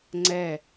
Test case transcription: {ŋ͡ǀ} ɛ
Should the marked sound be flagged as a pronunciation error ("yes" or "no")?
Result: no